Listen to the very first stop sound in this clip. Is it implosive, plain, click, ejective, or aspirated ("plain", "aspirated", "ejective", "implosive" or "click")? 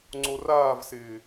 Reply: click